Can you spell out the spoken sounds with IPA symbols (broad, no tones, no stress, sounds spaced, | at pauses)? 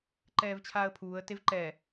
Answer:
ǃ ɛː v t͡ɕʰ aː ə̯ pʰ uː ə̯ t e v ǃ ɛ